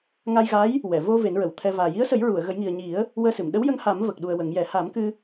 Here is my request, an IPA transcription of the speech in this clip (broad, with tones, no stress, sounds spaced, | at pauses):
ŋ a˧ j ɣ a˧˥ j | w ɛ˨˩˨ v o˧ v e˨˩˦ n ɹ ə˨˩˨ w t̪ʰ ɛ˧ v aː˨˩ j i˧˥ ə̯ s ə˨˩˦ j ɹ u˨˩˨ ə̯ ɣ ə˨˩˦ j ŋ i˨˩ ə̯ ɲ i˨˩˦ ə̯ | w əː˧ s ɨ˨˩˨ m ɗ ə˧˥ w j ə˧ ŋ h a˨˩˦ m v ə˨˩ k̚ ɗ u˨˩ ə̯ w ə˨˩˦ ŋ j ɛ˨˩˦ h a˨˩˦ m k ɨ˧